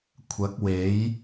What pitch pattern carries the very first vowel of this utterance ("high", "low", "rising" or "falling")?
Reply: rising